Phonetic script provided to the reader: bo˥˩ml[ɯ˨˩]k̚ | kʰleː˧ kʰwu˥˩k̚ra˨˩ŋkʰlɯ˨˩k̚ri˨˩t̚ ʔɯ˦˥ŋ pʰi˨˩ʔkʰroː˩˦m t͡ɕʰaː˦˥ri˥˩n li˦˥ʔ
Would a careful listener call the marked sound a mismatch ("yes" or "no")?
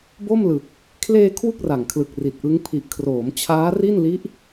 no